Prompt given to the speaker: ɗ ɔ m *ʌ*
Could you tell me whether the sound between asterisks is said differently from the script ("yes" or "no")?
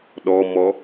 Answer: yes